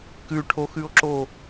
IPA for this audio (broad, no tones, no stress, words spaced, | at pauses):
kʉʈʰoxʉo̯ǁo